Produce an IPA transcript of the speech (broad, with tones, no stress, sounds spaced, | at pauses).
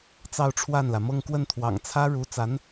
t͡s ɑ˥˧ ʊ̯ ʈ͡ʂʰ w a˥˩ n l ä˩ m ɤ˥˧ ŋ k w ə˥˩ n t̪ʰ w ɑ̰˨˩ ŋ t͡sʰ ä˥ ɻ u˧˥ t͡s a˧˥ n